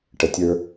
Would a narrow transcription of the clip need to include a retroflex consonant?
yes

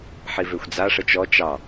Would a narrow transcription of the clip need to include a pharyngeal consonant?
yes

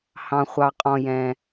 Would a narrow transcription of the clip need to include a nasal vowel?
yes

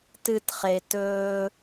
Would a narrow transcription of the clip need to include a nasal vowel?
no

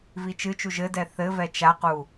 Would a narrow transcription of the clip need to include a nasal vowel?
no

